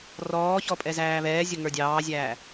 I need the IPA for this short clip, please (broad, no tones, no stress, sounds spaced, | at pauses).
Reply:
r ɔː ç ɔ pʼ ɛ z æː β ɛː zʲ ʊ ŋ ə˞ dʲ ɑː zʲ æː